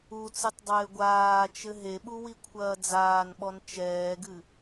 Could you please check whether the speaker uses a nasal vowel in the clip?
no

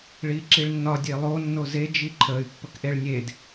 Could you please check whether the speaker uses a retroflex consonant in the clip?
yes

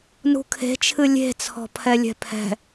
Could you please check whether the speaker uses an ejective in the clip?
no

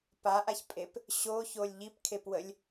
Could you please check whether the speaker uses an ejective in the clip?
yes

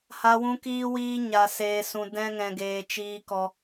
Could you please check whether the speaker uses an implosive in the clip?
no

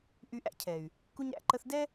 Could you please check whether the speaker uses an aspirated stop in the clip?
yes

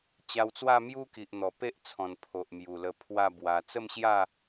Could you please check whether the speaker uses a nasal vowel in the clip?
yes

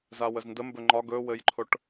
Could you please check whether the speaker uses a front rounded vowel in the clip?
no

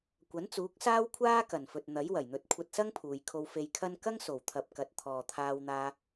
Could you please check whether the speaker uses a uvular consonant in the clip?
no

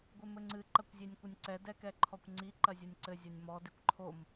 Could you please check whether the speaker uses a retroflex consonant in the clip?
no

